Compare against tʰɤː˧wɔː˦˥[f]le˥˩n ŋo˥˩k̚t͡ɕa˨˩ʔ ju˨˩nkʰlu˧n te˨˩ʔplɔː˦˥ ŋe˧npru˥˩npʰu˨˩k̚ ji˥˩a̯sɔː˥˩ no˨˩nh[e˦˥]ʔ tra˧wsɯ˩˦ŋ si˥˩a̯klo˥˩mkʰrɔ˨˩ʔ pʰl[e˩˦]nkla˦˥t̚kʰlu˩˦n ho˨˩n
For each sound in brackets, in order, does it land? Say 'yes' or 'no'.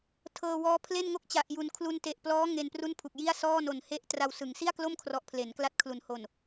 no, yes, yes

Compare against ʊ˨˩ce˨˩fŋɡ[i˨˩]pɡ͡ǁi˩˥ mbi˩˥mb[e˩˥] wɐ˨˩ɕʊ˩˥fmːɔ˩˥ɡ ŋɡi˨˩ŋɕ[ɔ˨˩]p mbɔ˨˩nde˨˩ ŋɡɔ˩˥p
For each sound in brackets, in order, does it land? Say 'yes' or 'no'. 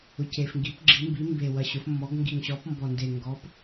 no, no, no

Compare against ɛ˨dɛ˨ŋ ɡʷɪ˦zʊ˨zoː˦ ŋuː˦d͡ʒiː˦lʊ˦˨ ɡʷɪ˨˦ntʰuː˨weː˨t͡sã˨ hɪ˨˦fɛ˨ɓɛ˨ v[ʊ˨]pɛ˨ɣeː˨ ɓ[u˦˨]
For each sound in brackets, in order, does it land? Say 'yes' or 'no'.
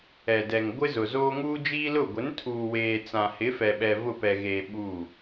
no, yes

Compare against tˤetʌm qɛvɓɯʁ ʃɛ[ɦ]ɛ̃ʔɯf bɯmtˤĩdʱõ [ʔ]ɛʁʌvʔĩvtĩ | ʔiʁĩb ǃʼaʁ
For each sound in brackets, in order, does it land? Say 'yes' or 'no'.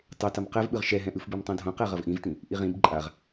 yes, no

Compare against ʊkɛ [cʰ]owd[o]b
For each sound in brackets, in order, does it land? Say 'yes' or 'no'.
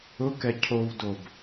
yes, yes

